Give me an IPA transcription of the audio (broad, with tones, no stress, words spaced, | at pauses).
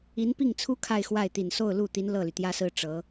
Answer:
i˧˥npi˥˩ŋt͡sʰu˥ kʰa˥˧ɪ̯xwa˥˩ɪ̯t̪i˨˩n so˥˧ʊ̯lu˥˩t̪i˧˥n lɤ˥˩ly˩t̪jä˥sɹ̩˥˩ ʈ͡ʂɤ˧˥